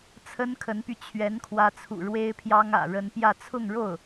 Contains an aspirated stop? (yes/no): yes